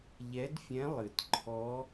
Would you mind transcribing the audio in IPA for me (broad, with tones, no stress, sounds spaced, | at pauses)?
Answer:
ʎ ɛ˧˥ d fʲ ɛ̃˧˥ lˠ ɨ˨˩ t ǃʰ ɔ˧˥